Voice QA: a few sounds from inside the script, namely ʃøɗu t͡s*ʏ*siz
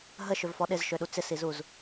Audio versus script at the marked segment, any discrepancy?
yes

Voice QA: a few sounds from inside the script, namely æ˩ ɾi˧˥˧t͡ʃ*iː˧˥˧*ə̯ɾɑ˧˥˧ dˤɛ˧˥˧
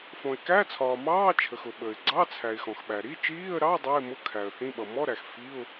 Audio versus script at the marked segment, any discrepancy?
no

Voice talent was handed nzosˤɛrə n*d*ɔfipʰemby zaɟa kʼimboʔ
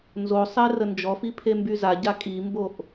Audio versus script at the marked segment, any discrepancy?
yes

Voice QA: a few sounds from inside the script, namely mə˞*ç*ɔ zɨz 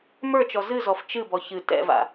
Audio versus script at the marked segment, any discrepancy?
yes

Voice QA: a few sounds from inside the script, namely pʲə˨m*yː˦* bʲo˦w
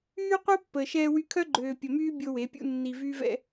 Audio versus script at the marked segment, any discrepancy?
no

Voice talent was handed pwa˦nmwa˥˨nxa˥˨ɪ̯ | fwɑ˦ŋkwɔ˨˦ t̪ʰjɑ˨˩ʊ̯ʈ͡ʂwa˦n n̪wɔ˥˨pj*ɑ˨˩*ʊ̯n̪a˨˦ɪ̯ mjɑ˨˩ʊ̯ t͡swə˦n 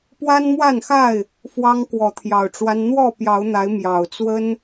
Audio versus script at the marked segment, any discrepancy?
yes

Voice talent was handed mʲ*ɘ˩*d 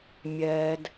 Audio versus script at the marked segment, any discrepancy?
yes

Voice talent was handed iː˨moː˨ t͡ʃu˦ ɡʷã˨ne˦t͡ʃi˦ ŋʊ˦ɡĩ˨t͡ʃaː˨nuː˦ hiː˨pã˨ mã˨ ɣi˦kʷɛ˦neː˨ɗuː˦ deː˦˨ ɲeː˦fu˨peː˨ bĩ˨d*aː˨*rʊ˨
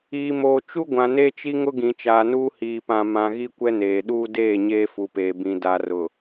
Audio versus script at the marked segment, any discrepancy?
yes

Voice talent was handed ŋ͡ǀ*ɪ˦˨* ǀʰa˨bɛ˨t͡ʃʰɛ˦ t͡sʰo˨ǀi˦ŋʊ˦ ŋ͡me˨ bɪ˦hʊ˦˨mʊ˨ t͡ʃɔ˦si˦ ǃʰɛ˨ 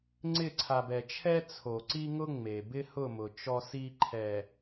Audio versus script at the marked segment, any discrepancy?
no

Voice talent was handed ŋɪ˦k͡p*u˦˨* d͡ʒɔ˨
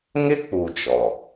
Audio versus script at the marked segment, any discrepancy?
yes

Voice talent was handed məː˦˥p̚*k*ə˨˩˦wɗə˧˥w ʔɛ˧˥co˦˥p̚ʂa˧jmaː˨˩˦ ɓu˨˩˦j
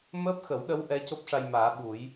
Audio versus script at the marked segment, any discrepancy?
yes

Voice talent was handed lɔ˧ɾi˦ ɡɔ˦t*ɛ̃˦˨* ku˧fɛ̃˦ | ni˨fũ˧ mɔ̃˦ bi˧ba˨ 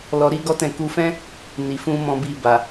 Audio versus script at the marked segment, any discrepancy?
no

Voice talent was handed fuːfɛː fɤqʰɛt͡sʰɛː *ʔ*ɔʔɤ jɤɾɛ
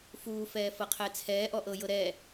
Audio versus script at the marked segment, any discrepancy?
no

